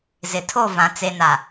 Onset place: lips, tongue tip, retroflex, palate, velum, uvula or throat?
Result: tongue tip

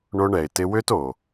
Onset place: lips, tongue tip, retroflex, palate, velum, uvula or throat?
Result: retroflex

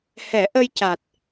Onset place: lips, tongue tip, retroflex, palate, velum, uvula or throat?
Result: throat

